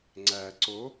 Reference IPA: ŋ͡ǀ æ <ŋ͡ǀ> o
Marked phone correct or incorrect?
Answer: incorrect